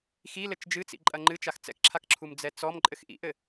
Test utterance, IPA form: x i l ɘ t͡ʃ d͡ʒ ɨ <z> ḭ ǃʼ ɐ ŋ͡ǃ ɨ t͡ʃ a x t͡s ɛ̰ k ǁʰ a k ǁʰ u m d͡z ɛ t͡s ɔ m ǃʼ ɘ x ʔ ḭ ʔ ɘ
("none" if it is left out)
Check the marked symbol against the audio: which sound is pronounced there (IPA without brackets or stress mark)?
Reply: t͡s